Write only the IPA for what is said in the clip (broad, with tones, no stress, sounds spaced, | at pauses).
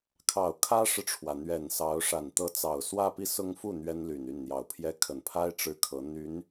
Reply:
kʰ ɑ˨˩ ʊ̯ kʰ ä˥ ʂ ɻ̩˨ ʈ͡ʂʰ w ä˩ n̪ ɥ ɛ˨˩ n s ɑ˧˥ ʊ̯ ʂ a˨˩ n t̪ ɤ˧˥ t͡s ɑ˨˩ ʊ̯ s w ä˥˧ p i˥˩ s ʊ˥ ŋ f u˥˩ n̪ ɥ ɛ˥ n l y˨˩ n y˥˩ n n̪ j ɑ˨˩ ʊ̯ pʰ j ɛ˥ kʰ ə˨˩ n pʰ a˥ ɪ̯ ʈ͡ʂ ɻ̩˥˩ kʰ ɤ˧˥ n̪ y˧˥ n